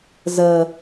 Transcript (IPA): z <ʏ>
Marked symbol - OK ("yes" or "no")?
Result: no